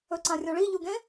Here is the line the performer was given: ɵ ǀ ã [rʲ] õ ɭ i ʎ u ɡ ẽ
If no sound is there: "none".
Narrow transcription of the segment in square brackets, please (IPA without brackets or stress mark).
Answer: rʲ